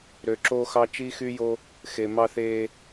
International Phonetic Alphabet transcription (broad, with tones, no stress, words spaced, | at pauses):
ɾø˨ǁoː˦xɑ˦ t͡ʃi˦xy˦jo˦ | xe˨ mɑ˦θeː˦